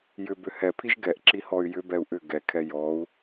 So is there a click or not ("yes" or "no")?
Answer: yes